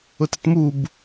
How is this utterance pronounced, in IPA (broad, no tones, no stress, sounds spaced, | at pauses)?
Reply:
ʊ t e t m u b